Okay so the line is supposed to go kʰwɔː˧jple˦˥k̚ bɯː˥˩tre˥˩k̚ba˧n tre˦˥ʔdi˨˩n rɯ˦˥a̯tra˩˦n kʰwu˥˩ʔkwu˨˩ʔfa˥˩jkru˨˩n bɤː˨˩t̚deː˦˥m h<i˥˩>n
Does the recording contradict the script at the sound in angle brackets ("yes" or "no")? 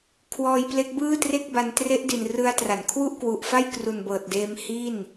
no